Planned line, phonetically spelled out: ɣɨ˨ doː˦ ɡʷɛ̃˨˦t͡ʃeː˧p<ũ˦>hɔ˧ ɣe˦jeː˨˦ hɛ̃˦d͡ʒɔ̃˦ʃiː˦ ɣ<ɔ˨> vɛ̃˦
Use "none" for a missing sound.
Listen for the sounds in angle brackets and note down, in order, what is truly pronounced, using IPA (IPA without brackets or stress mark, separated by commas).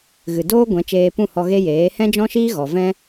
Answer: ũ˦˨, ɔ˨